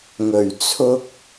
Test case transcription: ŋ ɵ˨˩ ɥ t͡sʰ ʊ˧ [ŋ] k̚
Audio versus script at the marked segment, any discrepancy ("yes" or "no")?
yes